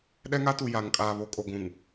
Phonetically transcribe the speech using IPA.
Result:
ɗ ɛ˦ ŋ a˦ t u˨ j a˨ ŋ kʼ aː˨ β o˨ kʼ o˨ ɡʷ ũ˨ ŋ

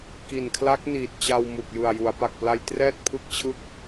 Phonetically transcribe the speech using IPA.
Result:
k i˨˩ n kʰ l a˦˥ k̚ n iː˨˩ t̚ t͡ɕ a˧ w m u˨˩ k̚ j ɯ˨˩ a̯ j u˩˦ a̯ p a˨˩ k̚ p l a˧ j t r ɛː˥˩ t̚ pʰ ɯ˥˩ k̚ t͡ɕʰ ɯ˥˩ k̚

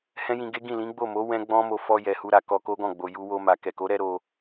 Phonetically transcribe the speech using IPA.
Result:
h ɛ̃˦ j ĩ˧ ɡ e˦ ɡ ĩ˦˨ l ĩ˨˦ ɡ͡b o˦˨ m o˨˦ w ɛ̃˦ ɡ͡b ɔ̃˦ m o˧ f ɔ˧ j ɛ˨ h u˧ ɾ a˨ k ɔ˧ k o˦ ɡ ɔ̃˦˨ ɡ͡b o˨ j u˧ w o˧ m a˨ k ɛ˨ k o˨˦ ɾ ɛ˧ ɾ o˧

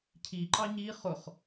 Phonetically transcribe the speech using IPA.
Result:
cʰ i ǃ ɑ ɲ i χ ʊ χ

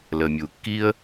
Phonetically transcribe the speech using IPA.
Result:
l ə˨ mʲ u˨ kː i˦ ə̯

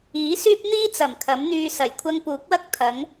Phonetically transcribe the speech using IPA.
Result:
iː˨˥ s yː˥ p̚ n̪ iː˥ t͡s ɐ˨˩ m kʰ ɐ˨˥ m n̪ yː˧ s ɐ˨˩ j kʷʰ ɐ˥ ŋ p uː˨˥ k̚ w ɐ˥ k̚ t̪ʰ ɐ˨˥ ŋ

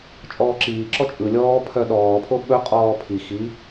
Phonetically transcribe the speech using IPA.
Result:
t͡ʃʼ ɔː ǁ iː ǁ ɔ t͡ʃʼ ɯ lʲ ɔː pʰ œ ɗ ɔː pʰ o ɓ ɵ qʼ ɔː pʰ i x i

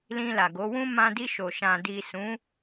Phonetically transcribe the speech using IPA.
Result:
l ĩ˧ l a˨ ɡ o˨˦ w ũ˦ m ã˧ d i˧ ʃ o˨ ʃ ã˨ d i˨ s ũ˨˦

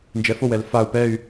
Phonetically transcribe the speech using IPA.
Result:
n d͡ʒ ɛ f o w ɛ l f a u̯ p ɛ y̯

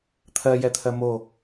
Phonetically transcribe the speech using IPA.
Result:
t̪ʰ ɜ j ɛ t̪ʰ ɜ m o

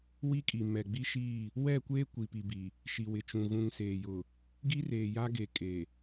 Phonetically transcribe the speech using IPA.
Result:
w i˦ kʼ i˨ m ɛ˨ ɡ͡b i˦ ʃ iː˦˨ | w ɛ˦˨ kʷ eː˦ kʷ i˨ p i˨ b i˨ | ʃ i˨ w ɪ˨ t͡ʃ ũ˨ ɣ ũ˨ ŋ s eː˨ j ʊ˨ | ɡ i˦ r eː˨ j a˦ ɡ e˨ kʼ e˨

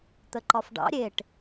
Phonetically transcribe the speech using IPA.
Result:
t̪ ə ǃ ɒ f ɖ ɑ̰ ɾʲ e ʈ

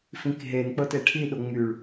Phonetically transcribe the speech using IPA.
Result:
f ĩ k ɦ e n k͡p ɤ t e ʈʰ i ɗ o ŋ͡m y ɭ

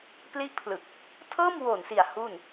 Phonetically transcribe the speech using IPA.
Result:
p l i˦˥ ʔ pʰ l ɯ˨˩ k̚ | tʰ ɤː˥˩ m w o˨˩ n s i˨˩ a̯ h u˥˩ n

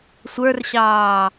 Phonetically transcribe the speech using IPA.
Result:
sʷ ə˞ r ɕ ɑː

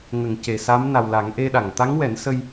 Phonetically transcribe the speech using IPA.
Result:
ŋ ə˨˩˨ ŋ c e˨˩ s a˧˥ m n a˨˩ w l a˨˩˦ ŋ ʔ e˧ ɗ a˨˩˨ ŋ t̪ a˧˥ ŋ w ɛ˨˩˦ n s ə˧ j

